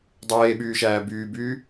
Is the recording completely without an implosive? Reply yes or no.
no